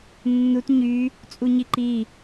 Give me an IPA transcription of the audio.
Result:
nː u t ɲ y | t͡sʼ u ɲ i ǃ i

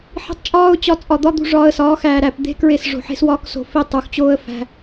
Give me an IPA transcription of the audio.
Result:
ħ i̤˧ tˤ t͡ʃʼ ɒː˦ ʊ̯ t͡ɕ ɒ˧ t͡sʼ ɒ˨ d̪ ɒ˦ d̪ ṳ˧ ʐ ɒː˧ ə̯ s ɒː˨˦ x æː˨ ɾ æ˦˨ p d̪ e̤˦ k ɹ e˦˨ s ʐ o̤˨ ħ e̤˦ s w ɒː˦ k s o̤˧ f i˦˨ tˤ u˨ x t͡ɕ oː˦ ə̯ f æ̤˧

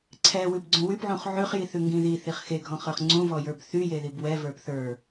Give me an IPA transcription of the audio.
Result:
ǀʰ ɛ w ʉ b ɡ͡ǀ ũ w y p ʕ ũ χ ʕ ʉ χ j i θ ʉ ŋ ɡ ĩ ð i θ i χ x e ɡʱ ɔ̃ χ ə˞ χ ŋ͡ǀ ũ v ɔ j ə˞ b θ y j e ð i b w ɛ v ə˞ p θ ə˞

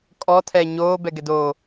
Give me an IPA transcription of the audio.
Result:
kʼ ɔ tʰ ɛː ɲ oː b ɛ ɡ ɛ d oː

